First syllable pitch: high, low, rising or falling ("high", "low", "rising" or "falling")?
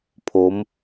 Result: rising